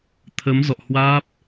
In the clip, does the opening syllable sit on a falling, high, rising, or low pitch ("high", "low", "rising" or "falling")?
rising